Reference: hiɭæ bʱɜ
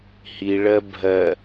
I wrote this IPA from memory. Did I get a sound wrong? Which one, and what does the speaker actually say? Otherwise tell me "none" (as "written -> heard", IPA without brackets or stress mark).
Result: æ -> ɜ